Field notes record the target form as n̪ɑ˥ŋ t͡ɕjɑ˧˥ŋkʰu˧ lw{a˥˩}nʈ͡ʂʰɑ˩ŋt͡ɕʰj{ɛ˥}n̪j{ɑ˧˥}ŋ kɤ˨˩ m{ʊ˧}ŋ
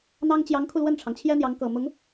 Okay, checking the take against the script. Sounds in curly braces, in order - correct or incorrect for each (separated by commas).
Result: incorrect, correct, correct, incorrect